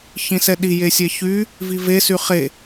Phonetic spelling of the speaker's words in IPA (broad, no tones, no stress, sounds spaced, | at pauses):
ç ĩ s ɛ ɗ i j e sʲ ɛ ç y | v i v e s y χ e